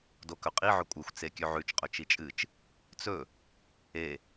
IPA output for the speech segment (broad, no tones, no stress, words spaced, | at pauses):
dokɵqʼiʕɵ kʷʼɨxʷt͡se kʲʉʕʉt͡ʃqʼɵ t͡ʃit͡ʃʼɨt͡ʃ | t͡sɵ | e